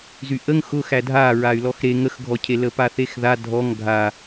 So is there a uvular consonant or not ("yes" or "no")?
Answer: no